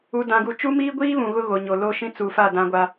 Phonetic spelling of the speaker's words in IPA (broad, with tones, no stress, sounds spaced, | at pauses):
u˦ d ã˦ ɡ u˦ t͡ʃ u˦ m iː˦ ɡʷ iː˦ β ũ˨ ɣ ʊ˦ ɣ o˨ ɲ o˨ l o˦ ʃ ĩ˦ t͡s u˨ f a˦˨ d ã˦ ɡʷ a˦